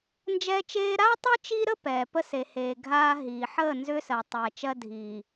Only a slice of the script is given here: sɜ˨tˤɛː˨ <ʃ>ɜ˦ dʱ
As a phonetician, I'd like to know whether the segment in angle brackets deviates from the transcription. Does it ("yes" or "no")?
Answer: yes